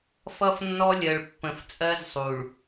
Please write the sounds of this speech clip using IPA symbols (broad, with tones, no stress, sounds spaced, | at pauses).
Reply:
f ʌ˦ f nː ɔ˦ lʲ ɜ˨ ɭ pː ə̃˨ f t͡sʼ ɜ˦ z sˤ u˨ ɭ